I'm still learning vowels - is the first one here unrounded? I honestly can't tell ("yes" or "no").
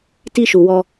yes